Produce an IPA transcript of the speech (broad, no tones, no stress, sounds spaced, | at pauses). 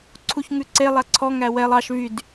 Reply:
ǀʰ u ç ŋ ʉ ǀ e lˠ æ ǀʰ ɔ ŋ æ w ɛ lˠ ɑ ʃ v y d